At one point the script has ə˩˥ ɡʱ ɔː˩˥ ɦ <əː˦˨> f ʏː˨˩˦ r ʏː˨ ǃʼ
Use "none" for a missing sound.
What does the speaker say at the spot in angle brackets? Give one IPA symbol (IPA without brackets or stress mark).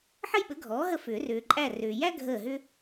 ə˦˨